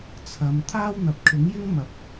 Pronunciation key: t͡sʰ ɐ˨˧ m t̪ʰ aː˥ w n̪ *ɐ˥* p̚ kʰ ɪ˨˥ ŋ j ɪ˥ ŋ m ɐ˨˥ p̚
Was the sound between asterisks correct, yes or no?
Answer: no